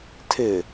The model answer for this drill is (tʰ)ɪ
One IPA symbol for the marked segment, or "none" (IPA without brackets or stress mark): tʰ